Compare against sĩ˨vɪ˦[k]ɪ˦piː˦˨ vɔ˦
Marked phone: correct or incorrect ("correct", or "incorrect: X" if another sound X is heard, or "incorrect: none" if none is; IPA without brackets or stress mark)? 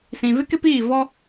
correct